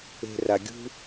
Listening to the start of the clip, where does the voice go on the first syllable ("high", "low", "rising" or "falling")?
low